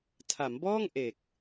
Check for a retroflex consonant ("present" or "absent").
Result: absent